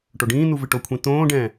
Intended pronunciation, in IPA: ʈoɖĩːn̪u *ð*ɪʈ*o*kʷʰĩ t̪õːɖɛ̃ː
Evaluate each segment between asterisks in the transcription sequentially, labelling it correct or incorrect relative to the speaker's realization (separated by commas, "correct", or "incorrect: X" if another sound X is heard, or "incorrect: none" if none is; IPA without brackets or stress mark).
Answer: incorrect: v, correct